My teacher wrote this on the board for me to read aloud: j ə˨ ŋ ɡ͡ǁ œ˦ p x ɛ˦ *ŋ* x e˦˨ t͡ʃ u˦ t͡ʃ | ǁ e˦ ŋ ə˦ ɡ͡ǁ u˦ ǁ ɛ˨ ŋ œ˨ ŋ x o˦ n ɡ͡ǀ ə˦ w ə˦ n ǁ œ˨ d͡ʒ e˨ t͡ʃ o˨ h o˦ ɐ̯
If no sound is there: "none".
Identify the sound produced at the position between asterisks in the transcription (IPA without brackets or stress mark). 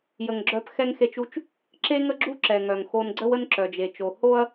ŋ